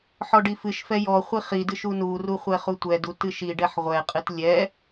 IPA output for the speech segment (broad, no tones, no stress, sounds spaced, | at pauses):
ħ ɔ ɖ i f ɨ ʃ f ɛ j ɔ χʷ i χ i d ɨ ʃ u n u r u χʷ ɛ χ u tʷ ɛ d u t ɨ ʃ i ɖ ɛ ħ ʁʷ ɛ qʼ ɨ t lʲ ɛ